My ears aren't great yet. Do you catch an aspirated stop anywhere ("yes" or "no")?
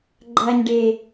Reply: no